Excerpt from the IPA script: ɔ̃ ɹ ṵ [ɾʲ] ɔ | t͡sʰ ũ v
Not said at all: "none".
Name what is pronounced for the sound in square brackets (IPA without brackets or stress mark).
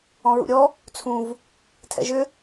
ɾʲ